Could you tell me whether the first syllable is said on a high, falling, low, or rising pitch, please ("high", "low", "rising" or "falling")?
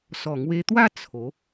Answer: low